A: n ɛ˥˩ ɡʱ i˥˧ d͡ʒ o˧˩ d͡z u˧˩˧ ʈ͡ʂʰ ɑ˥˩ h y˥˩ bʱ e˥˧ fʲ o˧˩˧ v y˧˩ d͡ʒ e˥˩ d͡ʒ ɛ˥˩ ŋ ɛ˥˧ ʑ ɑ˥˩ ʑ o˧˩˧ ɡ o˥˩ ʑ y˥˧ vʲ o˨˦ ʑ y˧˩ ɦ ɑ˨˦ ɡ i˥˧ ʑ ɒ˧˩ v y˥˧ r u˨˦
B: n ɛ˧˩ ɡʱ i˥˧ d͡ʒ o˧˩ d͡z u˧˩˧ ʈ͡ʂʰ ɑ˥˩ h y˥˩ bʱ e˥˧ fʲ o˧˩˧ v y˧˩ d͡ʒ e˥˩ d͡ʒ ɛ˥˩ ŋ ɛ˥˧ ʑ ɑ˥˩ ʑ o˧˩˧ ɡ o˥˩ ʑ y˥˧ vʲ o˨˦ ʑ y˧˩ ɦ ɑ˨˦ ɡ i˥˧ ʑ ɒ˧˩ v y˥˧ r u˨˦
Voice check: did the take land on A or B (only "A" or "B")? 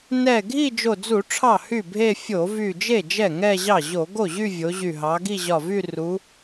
B